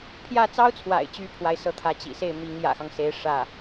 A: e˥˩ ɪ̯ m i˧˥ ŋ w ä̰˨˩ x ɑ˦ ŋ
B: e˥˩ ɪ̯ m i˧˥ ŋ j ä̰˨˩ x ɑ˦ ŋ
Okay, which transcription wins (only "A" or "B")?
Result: B